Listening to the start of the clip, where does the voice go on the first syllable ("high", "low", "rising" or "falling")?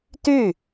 falling